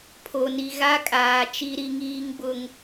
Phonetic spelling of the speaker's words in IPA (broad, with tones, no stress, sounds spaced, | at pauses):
pʰ o˨ n i˨ ɣ a˦ kʼ aː˨ t͡ʃ i˦ ɾ i˦ ŋ iː˦ ŋ b ʊ˦ ŋ